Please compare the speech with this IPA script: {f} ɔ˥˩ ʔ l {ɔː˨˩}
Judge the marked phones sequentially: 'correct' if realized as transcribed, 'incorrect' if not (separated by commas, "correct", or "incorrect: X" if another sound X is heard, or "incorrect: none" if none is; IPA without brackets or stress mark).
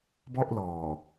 incorrect: b, correct